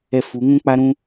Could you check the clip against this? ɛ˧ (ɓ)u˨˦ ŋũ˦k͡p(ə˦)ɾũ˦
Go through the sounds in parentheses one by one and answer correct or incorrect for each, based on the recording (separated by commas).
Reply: incorrect, incorrect